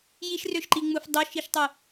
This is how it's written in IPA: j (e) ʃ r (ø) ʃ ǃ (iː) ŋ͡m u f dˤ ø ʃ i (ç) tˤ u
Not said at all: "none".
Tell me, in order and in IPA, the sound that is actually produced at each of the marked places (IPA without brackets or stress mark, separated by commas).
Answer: i, ø, i, ʃ